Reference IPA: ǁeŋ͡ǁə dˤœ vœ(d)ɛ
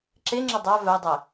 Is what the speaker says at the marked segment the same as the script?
no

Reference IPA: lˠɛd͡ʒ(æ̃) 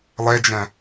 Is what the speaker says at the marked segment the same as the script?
yes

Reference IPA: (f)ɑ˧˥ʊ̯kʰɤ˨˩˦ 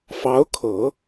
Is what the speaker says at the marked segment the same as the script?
yes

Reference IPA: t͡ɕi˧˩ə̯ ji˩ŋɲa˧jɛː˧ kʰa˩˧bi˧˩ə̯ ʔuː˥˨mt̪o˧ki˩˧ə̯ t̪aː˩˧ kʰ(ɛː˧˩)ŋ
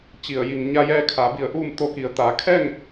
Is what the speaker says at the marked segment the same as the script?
no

